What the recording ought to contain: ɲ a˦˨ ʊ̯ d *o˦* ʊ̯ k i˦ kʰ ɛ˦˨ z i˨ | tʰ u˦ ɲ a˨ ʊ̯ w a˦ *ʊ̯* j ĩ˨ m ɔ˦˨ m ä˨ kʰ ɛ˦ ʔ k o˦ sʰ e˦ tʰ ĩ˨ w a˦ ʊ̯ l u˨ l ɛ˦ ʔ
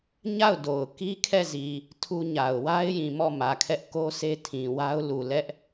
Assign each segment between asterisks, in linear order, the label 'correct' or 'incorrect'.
incorrect, incorrect

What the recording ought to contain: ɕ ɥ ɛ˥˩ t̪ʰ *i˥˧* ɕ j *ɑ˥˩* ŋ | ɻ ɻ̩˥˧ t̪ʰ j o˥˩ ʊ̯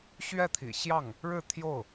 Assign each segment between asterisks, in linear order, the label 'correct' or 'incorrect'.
incorrect, correct

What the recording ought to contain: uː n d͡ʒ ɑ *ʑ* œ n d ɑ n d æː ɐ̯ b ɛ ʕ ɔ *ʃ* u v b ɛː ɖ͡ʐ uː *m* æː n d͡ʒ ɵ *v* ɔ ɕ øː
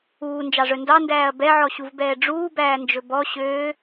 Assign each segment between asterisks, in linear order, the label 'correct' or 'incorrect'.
incorrect, incorrect, incorrect, incorrect

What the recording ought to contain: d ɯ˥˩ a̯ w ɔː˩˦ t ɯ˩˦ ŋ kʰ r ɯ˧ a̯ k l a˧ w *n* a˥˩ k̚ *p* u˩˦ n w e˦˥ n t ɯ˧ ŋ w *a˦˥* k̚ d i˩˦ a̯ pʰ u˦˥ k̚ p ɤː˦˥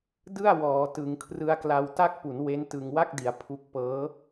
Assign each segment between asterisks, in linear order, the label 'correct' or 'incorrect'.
incorrect, correct, incorrect

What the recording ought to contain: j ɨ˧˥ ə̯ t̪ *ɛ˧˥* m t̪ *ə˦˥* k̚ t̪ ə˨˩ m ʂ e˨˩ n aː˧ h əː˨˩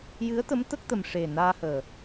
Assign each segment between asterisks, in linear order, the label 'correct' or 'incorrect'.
incorrect, correct

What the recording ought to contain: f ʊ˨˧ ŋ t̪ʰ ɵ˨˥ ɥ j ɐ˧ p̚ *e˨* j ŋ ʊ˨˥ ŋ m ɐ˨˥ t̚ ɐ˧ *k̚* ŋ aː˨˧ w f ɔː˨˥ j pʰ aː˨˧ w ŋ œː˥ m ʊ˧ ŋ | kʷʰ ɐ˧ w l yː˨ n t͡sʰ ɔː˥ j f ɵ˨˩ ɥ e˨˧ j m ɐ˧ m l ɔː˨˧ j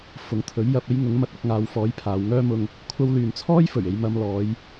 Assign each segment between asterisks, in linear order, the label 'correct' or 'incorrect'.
incorrect, correct

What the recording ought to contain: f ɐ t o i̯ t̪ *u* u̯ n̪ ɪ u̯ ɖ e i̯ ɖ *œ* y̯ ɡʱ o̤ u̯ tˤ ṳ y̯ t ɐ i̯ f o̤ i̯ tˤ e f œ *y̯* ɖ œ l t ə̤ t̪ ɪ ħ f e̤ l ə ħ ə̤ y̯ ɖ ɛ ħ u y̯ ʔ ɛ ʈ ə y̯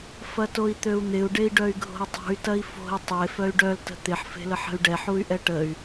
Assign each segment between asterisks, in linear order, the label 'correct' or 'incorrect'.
incorrect, correct, correct

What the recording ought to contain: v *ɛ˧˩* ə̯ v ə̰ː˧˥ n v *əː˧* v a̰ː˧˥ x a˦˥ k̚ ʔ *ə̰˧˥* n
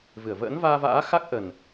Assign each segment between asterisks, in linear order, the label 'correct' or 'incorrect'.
incorrect, incorrect, incorrect

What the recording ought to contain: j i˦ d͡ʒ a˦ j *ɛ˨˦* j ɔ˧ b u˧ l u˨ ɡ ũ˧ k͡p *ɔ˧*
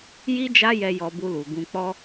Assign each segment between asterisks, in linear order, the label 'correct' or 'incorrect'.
incorrect, correct

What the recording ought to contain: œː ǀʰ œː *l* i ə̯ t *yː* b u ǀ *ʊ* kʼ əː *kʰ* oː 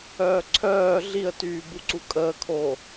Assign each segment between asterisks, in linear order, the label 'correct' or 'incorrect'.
incorrect, correct, incorrect, correct

